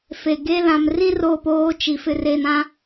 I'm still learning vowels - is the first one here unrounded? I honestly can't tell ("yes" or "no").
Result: yes